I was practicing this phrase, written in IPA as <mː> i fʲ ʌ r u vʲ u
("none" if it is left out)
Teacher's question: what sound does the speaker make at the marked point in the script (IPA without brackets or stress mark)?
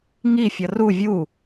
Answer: ŋ